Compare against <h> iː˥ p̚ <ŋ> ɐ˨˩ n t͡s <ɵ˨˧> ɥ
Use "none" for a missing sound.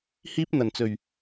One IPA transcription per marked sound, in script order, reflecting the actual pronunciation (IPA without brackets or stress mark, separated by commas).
h, n̪, ɵ˨˩